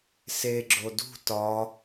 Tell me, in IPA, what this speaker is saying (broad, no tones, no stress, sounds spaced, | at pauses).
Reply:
s e ɡ͡ǁ o d ṳ t ɒ